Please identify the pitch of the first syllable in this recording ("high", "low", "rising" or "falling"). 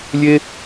high